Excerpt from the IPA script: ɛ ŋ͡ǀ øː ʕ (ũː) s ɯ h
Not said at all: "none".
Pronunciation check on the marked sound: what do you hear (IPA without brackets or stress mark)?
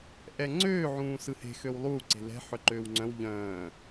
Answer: ũː